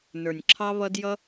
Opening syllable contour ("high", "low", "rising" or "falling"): low